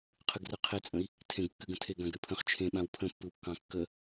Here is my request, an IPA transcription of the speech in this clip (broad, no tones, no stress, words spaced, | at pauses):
qʰɨɡrɨqʰet͡sʼə̃i̯ | tʰẽɡkːɨɡə̃tʰe ɡãɡɾɨpʰə̃χ t͡ʃʰẽɓãw pʰə̃pːɯwkːɑ̃ kːə